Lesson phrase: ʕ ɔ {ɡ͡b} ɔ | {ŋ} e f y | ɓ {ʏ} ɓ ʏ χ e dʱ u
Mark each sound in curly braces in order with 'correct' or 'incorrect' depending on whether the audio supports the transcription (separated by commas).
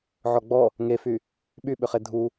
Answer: correct, correct, incorrect